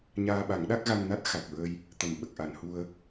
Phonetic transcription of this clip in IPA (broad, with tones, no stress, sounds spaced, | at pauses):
ɲ aː˧ ɓ a˨˩˦ ŋ ɗ a˦˥ k̚ ɣ a˧ ŋ n a˦˥ t̚ x a˨˩ k̚ ɹ ə˧ j | t̪ ə˨˩ m ɓ ə˨˩ k̚ ʔ a˨˩˨ n h u˧ ə̯